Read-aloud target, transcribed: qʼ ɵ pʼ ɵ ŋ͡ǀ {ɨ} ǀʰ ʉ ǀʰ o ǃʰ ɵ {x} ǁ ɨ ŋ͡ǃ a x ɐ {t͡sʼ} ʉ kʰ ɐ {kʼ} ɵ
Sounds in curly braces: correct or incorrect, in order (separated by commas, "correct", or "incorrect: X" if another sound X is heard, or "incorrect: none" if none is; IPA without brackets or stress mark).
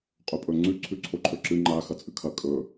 incorrect: ʉ, incorrect: none, correct, correct